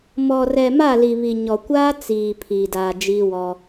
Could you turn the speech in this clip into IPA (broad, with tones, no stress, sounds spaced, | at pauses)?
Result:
m ɔ˨ r ɛ˨ m a˦˨ l i˨ β i˨ ɲ ɔ˨ kʷ aː˦ t͡s iː˨ pʰ iː˨ d aː˨ d͡ʒ iː˦ w ɔ˦